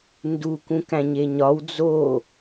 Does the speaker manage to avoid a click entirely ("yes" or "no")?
yes